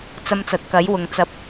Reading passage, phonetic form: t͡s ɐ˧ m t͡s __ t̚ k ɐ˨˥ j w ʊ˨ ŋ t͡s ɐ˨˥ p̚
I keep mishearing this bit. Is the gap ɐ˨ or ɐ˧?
ɐ˨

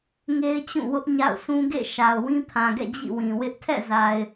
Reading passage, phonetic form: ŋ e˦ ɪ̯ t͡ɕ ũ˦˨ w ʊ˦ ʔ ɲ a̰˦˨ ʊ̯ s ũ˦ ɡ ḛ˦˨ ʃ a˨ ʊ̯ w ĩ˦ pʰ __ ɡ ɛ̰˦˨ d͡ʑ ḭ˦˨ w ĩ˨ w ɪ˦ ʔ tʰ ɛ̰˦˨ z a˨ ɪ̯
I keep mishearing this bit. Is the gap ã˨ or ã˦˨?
ã˨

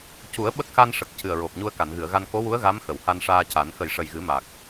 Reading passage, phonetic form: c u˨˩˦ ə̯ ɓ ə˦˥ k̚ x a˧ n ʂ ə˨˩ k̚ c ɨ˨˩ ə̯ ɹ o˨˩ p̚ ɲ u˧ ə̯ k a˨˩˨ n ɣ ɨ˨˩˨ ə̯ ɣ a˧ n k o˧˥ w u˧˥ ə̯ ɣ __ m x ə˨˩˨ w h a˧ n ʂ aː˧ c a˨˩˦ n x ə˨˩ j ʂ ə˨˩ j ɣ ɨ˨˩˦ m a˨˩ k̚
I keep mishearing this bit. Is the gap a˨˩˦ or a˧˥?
a˧˥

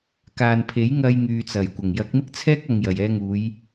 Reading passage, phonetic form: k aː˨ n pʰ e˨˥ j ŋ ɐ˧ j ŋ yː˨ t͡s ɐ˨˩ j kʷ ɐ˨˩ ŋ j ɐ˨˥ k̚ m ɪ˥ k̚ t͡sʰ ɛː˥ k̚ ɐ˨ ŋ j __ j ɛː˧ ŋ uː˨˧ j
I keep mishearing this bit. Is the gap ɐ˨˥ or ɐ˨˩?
ɐ˨˩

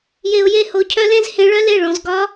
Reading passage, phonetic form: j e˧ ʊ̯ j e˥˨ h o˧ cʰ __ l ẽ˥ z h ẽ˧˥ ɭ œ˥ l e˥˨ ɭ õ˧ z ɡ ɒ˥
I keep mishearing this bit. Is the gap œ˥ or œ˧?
œ˥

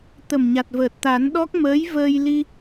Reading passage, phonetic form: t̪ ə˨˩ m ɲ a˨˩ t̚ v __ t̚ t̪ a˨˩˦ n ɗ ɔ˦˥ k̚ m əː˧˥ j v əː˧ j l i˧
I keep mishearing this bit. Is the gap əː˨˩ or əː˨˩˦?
əː˨˩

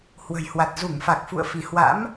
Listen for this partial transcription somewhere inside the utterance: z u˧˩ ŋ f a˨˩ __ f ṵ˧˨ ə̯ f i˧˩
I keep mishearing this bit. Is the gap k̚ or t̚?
k̚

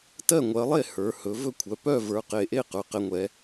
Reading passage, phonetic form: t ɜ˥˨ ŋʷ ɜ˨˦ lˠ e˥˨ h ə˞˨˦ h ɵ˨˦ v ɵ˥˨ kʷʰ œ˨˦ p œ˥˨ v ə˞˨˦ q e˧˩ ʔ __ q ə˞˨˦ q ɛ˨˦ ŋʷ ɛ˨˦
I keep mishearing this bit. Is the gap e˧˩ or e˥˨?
e˥˨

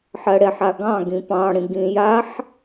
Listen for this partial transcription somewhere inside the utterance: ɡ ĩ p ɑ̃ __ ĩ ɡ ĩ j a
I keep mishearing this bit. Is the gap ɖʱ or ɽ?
ɽ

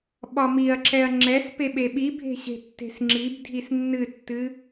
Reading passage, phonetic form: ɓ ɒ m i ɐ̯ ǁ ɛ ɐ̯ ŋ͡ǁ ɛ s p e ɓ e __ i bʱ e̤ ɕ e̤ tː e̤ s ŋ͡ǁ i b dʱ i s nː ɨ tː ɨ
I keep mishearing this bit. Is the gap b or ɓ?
ɓ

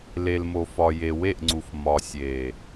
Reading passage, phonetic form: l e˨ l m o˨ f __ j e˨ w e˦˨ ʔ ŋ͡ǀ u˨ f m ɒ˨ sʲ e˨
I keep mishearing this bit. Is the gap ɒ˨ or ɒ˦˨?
ɒ˨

